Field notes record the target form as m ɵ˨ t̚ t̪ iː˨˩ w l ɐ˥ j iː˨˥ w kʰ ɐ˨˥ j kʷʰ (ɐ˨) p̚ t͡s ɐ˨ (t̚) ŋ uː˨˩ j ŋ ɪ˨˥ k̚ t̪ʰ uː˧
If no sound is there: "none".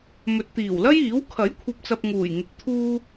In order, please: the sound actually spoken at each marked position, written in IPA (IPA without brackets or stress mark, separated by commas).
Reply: ɐ˨, p̚